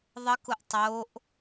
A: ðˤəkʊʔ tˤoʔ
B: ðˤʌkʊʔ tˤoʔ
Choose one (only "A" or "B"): A